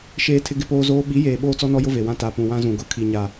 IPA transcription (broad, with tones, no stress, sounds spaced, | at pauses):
ʃ eː˦ tʰ ɪ˦ ɡ ɪ˦ p oː˦ z oː˦ ɓ i˨˦ j eː˨ ɓ oː˦ t͡s ɔ˦ n ɔ˦ j ʊ˦ v e˨ w ã˦ t a˨ p ũ˨ w ã˦ z ũ˨ ɡ ʊ˦˨ kʰ i˨ ɲ a˨